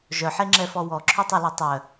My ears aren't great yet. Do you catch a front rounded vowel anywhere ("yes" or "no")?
yes